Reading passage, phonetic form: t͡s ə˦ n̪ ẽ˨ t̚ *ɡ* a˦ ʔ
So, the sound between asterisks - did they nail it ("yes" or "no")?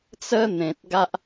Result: yes